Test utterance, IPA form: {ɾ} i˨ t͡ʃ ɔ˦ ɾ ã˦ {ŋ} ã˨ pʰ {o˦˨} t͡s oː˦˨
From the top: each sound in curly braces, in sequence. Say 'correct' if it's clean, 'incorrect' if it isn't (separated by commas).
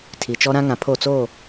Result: incorrect, correct, correct